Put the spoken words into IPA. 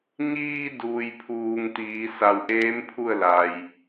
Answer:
ɲiː˧duː˩jpʰuː˩ŋ t̪iː˩˧sa˧˩w ʔeː˧˥mpʰu˥˨ə̯ la˩j

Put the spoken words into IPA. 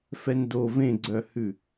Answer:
fɛndo vẽɡ͡ǀœhʉ

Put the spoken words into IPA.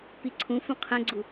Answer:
piǀʰũfũ qʰɛ̃ɡ͡ǀu

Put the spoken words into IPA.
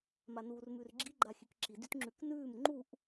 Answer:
manuːrmʉrɡ͡ǁi ɡ͡ǃaxʲʉkǁi dytŋ͡ǁʉknʉːm ŋ͡ǃuʔ

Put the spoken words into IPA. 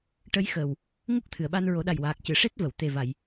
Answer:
ʈə˧˥jxəː˨˩w | ŋu˦˥k̚t̪ʰɨ˨˩˨ə̯ɓa˧n ɹo˨˩˦ɗa˨˩jwaː˨˩k̚cɨ˨˩˨ ʂe˦˥t̚və˨˩˨w t̪e˨˩va˨˩˨j

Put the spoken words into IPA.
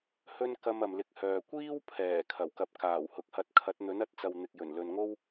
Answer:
hɵ˥n kɐ˧m ɐ˨mlɪ˧k̚hœː˨ kʷiː˥wpʰɛː˨˩ kʰɐ˨˩wkɐ˨˥p̚ kaː˨˩whʊ˨k̚hɐ˧t̚ kʰɐ˨˥t̚n̪ɵ˨˥nɐ˨˥t̚t͡sɐ˨w n̪ɪ˨k̚jɵ˨˩n lɵ˨nŋo˥w

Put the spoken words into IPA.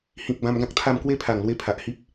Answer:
hĩ˨k̚ bã˧mɡã˦k̚t̪ʰa˥˧m kwe˦pʰa˨˩ŋlwe˧ pʰa˨ʔhi˦p̚

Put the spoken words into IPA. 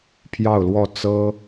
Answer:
pʰjɑ˥˧ʊ̯lwɔ˥˩ t͡sɤ˥

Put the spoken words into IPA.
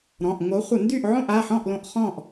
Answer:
ɾɔ̃˩˧˩ʔ ŋo˨˦χʷə˧˩˧ ndy˥˨ʔ ʕõ˥˨ʔa˩˧˩ħɔ̃˥˨ʔlõ˧˩˧ʔ χɔ̃˥˨ʔ

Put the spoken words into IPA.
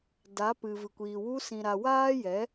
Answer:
da˨˦ pɨ˨vɨ˨kʷiː˨ wu˧ sĩ˨ɾa˨ waː˦jɛ˨˦

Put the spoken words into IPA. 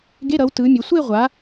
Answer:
ɡe˧˥˧ɾʌ˨˦w tɯ˨˦mʲo˨˦ sʷe˥˧ʁʷa˨˦

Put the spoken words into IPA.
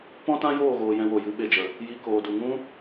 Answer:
pɔ̃˦tã˦joː˦˨ɣoː˨ jɛ̃˧wo˨jɨ˨˦ ɓe˧d͡ʒə˨ | ji˧koː˨du˨ŋũ˦

